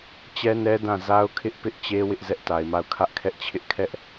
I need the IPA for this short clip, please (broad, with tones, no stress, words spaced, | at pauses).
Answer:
t͡ɕɛ˦nɛ˦ dã˦˨ za˦ʊ̯kʰɪ˦ʔpɪ˦ʔt͡ɕe˦ wɪ˦ʔzɛ˦ʔta˨ɪ̯ma˦˨ʊ̯ kʰä˦ʔkʰɛ˦ʔt͡ɕʰɪ˦ʔ kʰɛ˦ʔ